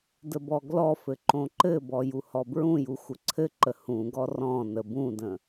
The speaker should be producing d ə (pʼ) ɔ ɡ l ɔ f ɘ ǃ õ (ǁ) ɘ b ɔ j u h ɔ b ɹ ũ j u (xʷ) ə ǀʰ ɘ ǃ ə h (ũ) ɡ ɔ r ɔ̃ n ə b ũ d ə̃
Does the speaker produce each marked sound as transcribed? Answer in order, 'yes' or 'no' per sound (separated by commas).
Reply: no, no, yes, yes